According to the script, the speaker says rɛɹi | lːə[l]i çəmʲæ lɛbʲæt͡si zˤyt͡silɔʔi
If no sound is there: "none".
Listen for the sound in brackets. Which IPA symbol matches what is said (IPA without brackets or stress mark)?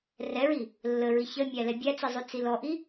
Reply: ɹ